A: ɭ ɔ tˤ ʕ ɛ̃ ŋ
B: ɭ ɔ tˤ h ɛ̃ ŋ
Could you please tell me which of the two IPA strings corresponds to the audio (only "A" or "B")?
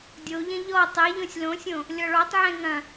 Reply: A